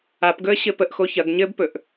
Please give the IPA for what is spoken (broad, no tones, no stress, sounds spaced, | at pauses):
a p ɡ ɵ ə̯ ɕ ɘ p ə ʔ x o ç ɐ ɡ ɲ ɘ b p ɵ ʔ